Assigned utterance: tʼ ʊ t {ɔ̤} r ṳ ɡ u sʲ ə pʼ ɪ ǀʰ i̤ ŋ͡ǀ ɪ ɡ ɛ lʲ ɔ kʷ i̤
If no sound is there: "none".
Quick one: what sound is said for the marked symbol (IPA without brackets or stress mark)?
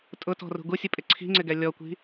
ɔ̤